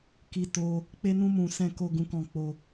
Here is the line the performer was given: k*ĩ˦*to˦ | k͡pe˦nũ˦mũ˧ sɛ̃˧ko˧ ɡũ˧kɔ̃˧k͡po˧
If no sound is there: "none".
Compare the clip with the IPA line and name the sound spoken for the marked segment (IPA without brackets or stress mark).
i˦